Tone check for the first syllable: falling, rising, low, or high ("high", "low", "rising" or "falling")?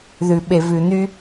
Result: low